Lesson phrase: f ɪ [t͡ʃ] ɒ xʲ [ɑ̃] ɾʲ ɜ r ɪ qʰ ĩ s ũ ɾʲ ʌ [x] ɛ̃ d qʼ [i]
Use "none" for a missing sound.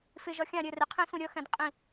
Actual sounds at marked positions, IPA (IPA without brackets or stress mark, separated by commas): ʒ, ɑ̃, x, ĩ